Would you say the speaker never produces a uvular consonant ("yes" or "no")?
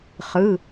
no